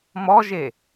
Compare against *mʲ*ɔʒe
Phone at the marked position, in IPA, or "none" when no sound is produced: m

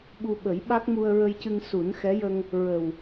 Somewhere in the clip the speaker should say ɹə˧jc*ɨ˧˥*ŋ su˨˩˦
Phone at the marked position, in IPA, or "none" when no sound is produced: ɨ˧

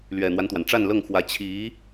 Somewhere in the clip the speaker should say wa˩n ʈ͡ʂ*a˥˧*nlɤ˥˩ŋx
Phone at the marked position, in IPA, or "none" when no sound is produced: a˥˧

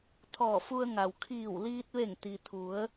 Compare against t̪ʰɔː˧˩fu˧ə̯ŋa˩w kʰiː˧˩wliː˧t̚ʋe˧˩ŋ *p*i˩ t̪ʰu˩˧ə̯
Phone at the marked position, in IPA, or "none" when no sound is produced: t̪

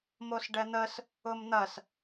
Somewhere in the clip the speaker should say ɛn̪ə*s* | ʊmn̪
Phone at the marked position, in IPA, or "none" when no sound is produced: s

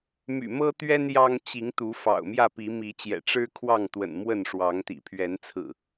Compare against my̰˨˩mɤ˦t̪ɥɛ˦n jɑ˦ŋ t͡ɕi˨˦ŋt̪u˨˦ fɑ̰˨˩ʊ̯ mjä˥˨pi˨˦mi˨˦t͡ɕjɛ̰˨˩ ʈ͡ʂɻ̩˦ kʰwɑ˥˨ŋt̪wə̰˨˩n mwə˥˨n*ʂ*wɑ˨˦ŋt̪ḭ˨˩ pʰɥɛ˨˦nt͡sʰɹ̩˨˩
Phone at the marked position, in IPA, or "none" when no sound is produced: ʂ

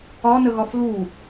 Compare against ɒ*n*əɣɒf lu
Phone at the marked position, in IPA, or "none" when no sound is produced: n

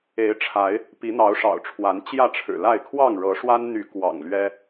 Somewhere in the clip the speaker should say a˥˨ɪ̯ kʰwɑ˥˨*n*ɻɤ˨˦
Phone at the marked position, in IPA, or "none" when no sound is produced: ŋ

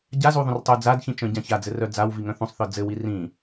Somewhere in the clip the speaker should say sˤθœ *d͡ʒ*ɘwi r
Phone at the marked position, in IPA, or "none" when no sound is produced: d͡z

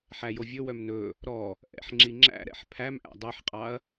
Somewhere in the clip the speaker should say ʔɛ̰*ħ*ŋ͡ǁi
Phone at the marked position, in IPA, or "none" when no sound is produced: ħ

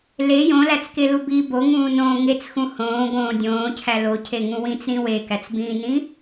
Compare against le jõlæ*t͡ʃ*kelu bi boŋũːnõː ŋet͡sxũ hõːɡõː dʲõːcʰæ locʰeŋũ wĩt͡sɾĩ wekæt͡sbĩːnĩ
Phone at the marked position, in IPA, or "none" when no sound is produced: t͡s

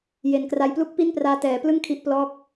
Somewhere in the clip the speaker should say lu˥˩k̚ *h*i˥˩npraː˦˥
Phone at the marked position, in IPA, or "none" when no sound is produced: p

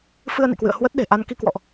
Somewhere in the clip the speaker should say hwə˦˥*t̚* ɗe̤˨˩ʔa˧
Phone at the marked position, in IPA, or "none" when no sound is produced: t̚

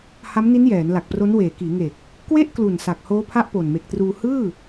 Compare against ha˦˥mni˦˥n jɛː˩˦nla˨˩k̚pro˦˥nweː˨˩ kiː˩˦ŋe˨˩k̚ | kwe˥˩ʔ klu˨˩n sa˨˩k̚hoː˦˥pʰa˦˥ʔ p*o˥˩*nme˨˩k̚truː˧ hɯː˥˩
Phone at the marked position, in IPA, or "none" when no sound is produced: o˨˩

